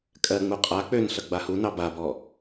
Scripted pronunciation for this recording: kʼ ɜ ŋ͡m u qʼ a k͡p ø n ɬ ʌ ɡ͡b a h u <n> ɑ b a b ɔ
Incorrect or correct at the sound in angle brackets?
correct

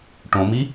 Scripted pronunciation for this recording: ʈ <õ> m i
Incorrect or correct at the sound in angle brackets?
correct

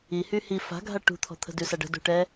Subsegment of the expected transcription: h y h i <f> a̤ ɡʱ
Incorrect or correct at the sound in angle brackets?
correct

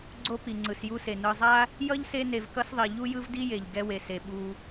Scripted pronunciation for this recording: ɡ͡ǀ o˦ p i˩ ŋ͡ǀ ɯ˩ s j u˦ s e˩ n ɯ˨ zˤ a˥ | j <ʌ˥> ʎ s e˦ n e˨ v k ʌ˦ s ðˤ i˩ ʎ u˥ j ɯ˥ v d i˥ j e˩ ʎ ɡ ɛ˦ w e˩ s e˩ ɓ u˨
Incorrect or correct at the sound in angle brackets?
correct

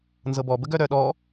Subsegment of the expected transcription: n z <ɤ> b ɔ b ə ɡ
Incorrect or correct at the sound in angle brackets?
correct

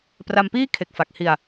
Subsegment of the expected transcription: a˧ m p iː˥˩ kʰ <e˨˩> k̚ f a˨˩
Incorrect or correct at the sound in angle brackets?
correct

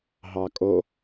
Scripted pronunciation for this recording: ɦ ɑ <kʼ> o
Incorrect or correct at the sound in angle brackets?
correct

